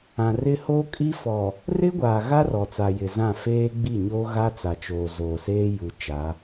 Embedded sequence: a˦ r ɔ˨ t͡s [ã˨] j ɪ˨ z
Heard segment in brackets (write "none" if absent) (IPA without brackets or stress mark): a˨